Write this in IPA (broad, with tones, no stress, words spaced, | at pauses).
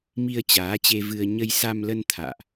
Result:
mi˧ə̯t͡ɕaː˨˦t͡ɕe˧vɨ˧ə̯ ɲə˧jsa˧mlə˧n t̪ʰa̰ː˧˨ʔ